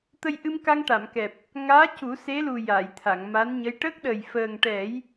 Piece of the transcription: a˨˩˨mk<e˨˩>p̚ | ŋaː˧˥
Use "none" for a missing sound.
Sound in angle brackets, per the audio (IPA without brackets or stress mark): ɛ˨˩